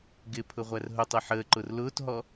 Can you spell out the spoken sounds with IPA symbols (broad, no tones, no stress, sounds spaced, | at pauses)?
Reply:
ɡ ɪ pʰ ʊ ʁʷ æ r ɦ ʊ tˤ i ħ əː ǃ ʊ r l ʊː t ɦ ɔ